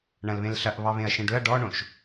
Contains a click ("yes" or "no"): no